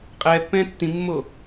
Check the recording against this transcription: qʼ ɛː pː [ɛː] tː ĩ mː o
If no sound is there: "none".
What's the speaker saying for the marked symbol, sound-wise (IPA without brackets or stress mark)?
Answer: ɛ̃ː